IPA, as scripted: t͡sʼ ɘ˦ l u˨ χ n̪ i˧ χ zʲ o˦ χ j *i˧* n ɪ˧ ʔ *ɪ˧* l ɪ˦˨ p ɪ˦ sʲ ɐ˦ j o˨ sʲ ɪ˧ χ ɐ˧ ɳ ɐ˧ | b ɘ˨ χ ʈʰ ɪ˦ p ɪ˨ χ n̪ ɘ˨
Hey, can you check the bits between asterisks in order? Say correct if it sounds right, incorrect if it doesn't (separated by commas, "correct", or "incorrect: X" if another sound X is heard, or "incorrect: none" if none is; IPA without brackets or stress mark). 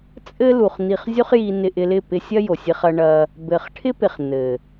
correct, correct